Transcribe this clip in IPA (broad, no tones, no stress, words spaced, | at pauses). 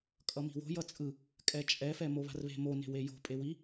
kʼʌmi̤wo̤ jʌt͡sʼɯ | kʼɛt͡ʃʼɛ fɛmoβa̤rβe̤ mo ne̤wejo̤ pʼewi